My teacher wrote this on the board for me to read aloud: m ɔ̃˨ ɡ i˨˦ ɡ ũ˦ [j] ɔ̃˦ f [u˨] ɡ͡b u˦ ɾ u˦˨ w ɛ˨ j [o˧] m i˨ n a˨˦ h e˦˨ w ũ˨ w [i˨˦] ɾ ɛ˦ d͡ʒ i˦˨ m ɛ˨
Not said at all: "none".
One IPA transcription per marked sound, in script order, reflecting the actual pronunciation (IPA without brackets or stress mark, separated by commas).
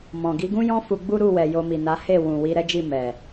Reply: j, u˧, o˧, i˨˦